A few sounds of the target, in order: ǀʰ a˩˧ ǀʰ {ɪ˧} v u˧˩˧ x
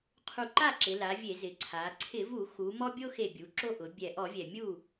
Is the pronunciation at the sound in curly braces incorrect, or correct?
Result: incorrect